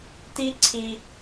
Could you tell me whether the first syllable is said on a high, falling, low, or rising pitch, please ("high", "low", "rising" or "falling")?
high